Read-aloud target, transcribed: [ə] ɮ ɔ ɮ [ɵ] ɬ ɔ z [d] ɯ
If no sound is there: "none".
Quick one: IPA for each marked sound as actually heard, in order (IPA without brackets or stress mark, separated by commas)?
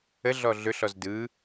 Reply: ə, ɵ, d